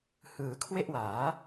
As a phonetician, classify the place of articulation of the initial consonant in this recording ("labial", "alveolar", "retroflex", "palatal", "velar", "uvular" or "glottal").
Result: glottal